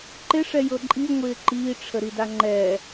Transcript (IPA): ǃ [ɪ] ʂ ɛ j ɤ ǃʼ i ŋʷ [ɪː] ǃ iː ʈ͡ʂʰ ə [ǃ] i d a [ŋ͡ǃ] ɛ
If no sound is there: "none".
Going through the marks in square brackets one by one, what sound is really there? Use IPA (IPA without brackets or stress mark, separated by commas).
ɪ, ɪː, ɾ, ŋ͡ǃ